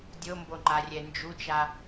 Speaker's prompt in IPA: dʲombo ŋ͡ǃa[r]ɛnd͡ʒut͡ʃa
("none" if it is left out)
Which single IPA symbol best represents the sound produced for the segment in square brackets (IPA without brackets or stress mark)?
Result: rʲ